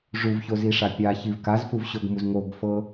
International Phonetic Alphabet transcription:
ʐ u v ç o z i ʂ a pʲ a ç i v k a z f u v ɕ o ɡ m u z ŋ o ɡ f ɤ

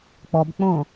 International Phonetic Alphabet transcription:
k͡p ɔ b k͡p õː

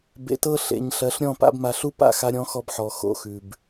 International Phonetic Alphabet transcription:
b ḛ˨ t ɤ˧ ɬ ḛ˨ ɲ ɬ ɜ˨˦ ɬ ɾʲ ɔ̃˦˨ p a̰˦ b m a˧ ɬ u˦ p a̰˦˨ x a˧ ɾʲ ɔ̃˧ x ɔ˧ b ħ ɔ˨ x o̰˧ x ʉ˨ b

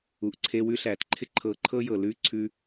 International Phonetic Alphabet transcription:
u˨ ʔ ǀʰ e˧ w ʉ˧ ɬ æː˨ t ǃʰ ɪ˦ ǃʰ ɤː˧ ǃʰ ɤ˦ j ɤ˨ l ʉː˦˨ ǀʰ ʉ˧

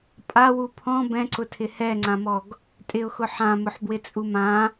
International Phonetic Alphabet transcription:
pʼ a w u pʰ ɔ̃ b ɛ̃ ǀ ʊ tʰ ɪ h ɛ ŋ͡ǀ ã m ɔ ɡ | tʼ ɪ ʊ̯ x ʊ ħ ã m ʊ ħ b w ɪ t͡sʼ u m ã

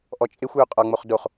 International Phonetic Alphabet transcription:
ʔ ɔ t͡ʃʼ e xʷ j o qʼ ɒ ŋ͡m o χ d o χ

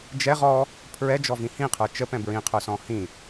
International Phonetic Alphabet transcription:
d͡ʒ ɛ ʁ ɔ | pʰ ɹ ɛ d͡ʒ ɔ v ĩ h ĩ qʰ ə˞ t͡ʃ ə p ɛ̃ b ɹ ĩ qʰ ə˞ s ɔ̃ h ĩ

